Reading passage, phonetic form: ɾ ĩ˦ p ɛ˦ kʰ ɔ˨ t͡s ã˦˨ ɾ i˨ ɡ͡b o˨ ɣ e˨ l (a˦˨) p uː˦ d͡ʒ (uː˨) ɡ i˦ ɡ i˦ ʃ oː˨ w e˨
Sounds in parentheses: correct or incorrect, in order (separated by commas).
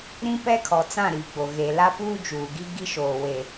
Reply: incorrect, correct